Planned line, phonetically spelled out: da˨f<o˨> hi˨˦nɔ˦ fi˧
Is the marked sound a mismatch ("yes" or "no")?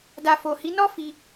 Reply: no